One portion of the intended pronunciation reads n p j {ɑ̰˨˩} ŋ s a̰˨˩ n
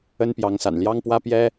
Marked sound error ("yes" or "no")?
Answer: yes